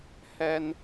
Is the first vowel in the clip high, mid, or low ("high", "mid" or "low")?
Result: mid